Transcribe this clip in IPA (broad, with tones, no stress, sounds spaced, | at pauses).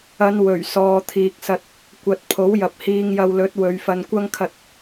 ɐ˨˧ n w ɵ˨˩ ɥ s ɔː˨ t̪ʰ iː˨ k̚ s ɐ˧ t̚ | kʷ ɐ˨ t̚ pʰ o˨˥ w j ɐ˨ p̚ h iː˧ ŋ j ɐ˧ w l ɵ˨˥ t̚ w ɵ˨˧ ɥ f ɐ˧ n kʷ ɐ˥ ŋ kʰ ɐ˧ t̚